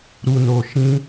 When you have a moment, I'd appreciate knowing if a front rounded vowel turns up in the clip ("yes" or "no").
no